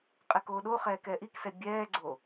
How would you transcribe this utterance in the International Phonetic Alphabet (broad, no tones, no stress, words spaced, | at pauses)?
qʼɛkoːɗoχɛːk ɛːʔiksɛ bʲɛːɡ͡ǀo